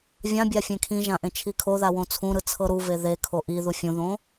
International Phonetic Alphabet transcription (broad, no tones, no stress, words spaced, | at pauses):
vʲãbʲa fʲẽkʰĩʒã ʔẽt͡ʃʰikʰoða wõt͡sʰũɾɯ t͡sʰɤɾuve ðekʰo ʔiðu fʲũðõ